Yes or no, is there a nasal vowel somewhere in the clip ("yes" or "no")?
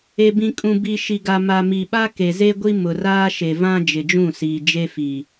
yes